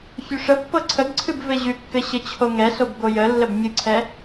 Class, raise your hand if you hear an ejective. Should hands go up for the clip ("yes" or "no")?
no